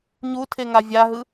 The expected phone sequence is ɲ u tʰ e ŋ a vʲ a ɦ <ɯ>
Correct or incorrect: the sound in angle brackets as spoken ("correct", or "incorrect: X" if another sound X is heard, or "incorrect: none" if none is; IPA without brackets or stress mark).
correct